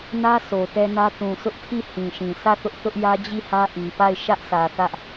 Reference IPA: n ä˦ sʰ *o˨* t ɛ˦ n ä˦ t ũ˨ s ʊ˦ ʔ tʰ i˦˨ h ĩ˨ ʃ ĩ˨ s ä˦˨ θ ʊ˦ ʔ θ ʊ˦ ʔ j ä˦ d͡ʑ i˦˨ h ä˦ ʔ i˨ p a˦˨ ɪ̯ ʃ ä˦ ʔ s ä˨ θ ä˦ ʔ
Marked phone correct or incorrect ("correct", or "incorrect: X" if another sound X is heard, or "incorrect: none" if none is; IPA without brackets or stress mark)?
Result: correct